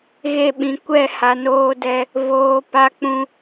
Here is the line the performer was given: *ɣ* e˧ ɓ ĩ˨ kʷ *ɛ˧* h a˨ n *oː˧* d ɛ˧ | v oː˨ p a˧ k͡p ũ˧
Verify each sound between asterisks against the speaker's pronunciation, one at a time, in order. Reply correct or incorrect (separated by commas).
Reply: correct, incorrect, correct